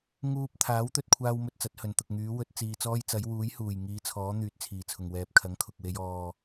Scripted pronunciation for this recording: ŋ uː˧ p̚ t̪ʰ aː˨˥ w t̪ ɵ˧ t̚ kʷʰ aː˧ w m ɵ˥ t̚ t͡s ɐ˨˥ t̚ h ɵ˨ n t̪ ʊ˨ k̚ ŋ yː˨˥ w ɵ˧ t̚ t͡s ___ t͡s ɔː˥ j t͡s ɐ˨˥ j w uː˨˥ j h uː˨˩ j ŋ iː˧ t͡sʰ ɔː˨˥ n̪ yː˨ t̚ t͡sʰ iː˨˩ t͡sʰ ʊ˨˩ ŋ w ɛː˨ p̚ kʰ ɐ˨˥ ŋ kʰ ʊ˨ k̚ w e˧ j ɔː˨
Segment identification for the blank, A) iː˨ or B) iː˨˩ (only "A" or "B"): A